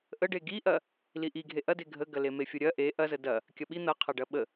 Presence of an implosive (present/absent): present